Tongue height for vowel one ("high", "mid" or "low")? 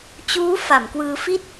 high